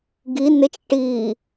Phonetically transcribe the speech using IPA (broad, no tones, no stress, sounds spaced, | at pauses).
ɡ i n ɪ t͡ʃ ʈ i